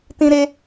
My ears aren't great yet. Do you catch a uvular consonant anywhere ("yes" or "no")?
no